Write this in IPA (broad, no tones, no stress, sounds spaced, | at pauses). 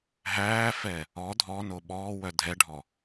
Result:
ɦ æː f ɛ | ɔ dʱ ɔ n o ɓ ɔː w œ dʱ ɛ ɖʱ ɔ